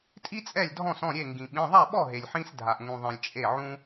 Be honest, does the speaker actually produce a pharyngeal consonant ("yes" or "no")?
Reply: yes